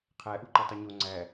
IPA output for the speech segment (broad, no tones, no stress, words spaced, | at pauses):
qʰæ ʔuǃɯtˤɯɲo ŋ͡ǀæ